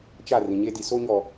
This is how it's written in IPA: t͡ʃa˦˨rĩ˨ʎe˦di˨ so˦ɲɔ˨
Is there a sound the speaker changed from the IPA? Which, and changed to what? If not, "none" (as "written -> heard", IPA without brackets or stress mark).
ʎ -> ɲ